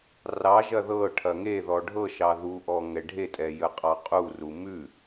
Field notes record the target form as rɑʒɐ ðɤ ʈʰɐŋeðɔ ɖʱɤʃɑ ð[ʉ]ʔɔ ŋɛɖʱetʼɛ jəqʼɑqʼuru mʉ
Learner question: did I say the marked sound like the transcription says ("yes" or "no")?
no